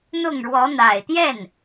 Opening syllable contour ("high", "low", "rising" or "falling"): falling